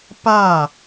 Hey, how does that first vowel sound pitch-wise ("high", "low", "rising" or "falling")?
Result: falling